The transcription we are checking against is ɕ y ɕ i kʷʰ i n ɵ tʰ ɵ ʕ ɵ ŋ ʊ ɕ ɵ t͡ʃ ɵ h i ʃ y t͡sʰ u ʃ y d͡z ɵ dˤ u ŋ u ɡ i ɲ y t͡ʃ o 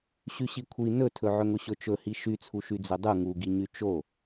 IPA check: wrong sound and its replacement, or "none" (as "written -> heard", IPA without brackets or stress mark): none